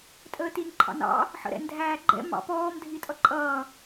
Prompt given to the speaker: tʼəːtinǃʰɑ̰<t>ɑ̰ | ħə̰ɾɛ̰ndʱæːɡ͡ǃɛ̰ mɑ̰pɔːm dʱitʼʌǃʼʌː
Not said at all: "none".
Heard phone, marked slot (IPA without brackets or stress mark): n